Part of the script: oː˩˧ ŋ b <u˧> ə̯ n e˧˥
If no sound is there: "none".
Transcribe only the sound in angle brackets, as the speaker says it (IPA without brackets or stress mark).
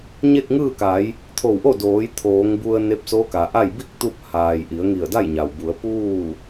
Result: u˧